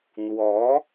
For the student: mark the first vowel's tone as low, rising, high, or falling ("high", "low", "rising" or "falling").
rising